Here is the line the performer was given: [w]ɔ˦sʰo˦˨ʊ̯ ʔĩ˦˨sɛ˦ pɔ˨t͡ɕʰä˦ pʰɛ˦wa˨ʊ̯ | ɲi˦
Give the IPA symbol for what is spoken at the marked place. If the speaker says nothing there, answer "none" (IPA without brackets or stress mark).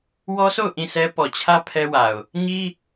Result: w